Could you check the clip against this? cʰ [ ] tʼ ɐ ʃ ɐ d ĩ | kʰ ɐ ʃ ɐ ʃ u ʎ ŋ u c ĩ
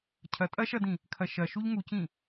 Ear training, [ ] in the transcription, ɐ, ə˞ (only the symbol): ɐ